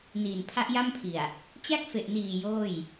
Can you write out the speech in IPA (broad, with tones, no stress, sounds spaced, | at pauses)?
n iː˨˩ n pʰ a˦˥ ʔ j a˥˩ m pʰ i˨˩ a̯ | t͡ɕ a˥˩ k̚ f e˨˩ ʔ n iː˨˩ j oː˥˩ j